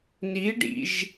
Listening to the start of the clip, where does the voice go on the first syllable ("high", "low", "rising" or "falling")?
rising